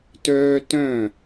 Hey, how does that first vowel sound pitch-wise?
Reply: high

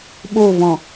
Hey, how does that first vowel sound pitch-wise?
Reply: falling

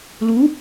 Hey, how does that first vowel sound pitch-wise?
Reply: rising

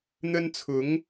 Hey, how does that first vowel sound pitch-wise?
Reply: high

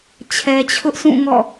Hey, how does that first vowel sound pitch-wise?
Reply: low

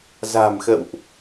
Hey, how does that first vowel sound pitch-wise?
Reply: low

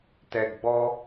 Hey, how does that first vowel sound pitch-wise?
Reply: low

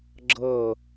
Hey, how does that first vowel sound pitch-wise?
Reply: falling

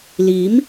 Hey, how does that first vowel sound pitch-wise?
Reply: rising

